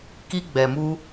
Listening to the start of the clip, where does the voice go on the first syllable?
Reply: high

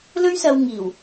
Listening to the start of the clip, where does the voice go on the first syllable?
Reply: high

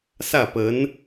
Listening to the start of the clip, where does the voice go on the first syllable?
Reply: falling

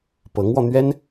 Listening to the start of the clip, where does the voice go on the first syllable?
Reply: rising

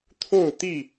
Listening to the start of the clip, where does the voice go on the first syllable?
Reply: falling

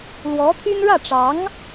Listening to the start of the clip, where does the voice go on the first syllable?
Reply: rising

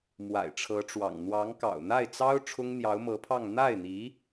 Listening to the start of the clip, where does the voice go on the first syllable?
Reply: low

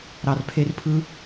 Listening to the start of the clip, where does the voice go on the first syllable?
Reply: low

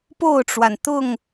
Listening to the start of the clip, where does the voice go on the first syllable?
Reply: falling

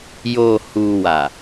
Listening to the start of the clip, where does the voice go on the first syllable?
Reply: low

